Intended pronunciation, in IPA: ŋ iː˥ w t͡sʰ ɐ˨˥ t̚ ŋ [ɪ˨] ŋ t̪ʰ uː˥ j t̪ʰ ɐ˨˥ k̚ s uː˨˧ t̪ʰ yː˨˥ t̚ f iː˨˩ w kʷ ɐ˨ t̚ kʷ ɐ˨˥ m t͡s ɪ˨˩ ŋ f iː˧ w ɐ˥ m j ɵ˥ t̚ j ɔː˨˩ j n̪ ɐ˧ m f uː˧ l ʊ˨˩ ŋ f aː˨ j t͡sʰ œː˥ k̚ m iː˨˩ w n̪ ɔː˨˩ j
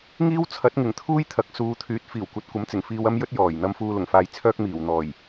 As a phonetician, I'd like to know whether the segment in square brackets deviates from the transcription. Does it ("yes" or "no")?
yes